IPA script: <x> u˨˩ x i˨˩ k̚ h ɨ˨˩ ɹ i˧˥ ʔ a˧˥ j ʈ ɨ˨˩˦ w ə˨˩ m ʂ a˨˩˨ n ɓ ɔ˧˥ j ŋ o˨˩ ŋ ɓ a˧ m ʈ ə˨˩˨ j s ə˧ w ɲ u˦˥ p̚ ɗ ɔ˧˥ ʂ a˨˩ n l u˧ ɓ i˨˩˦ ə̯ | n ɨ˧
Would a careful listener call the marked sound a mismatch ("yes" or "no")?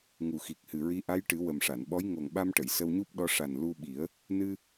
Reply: yes